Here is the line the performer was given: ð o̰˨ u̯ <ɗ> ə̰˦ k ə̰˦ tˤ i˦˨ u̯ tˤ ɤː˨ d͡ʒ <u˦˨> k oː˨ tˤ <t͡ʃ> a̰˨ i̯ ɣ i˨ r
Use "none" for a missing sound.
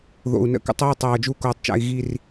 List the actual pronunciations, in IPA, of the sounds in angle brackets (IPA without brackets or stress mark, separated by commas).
n, u˦˨, t͡ʃ